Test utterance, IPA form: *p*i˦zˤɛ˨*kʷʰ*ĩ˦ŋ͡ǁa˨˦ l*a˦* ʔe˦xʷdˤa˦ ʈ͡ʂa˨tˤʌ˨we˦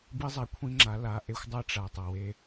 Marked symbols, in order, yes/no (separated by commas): no, yes, no